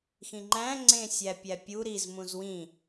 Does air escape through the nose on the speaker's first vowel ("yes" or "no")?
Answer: yes